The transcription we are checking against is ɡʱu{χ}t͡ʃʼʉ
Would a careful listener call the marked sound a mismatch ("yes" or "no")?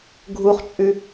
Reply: no